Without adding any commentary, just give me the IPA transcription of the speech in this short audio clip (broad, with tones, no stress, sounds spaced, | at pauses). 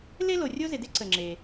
l e˥ l o˩ rʲ o˥ z ɪ˩ d ɪ˥ ǀ ə˩ ŋ͡ǁ e˩